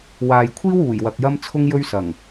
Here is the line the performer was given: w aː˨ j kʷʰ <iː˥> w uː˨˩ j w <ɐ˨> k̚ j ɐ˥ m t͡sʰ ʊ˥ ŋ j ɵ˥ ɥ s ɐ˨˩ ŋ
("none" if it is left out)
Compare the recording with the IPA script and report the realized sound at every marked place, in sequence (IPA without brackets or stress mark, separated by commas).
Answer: iː˥, ɐ˨